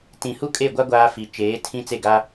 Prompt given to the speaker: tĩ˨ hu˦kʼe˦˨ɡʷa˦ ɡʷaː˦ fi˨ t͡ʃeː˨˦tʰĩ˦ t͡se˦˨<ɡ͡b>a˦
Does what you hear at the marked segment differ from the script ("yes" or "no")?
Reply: yes